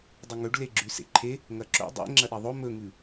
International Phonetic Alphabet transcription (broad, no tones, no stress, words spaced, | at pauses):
dˤɵŋɵɖ leɡ͡ǁʉsḛǃʰe | ŋɐǁo̰ dˤḛ ŋ͡ǁɐɗiðˤo mɵŋʉ